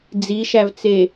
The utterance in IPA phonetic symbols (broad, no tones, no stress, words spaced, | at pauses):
d͡ziʃævt͡se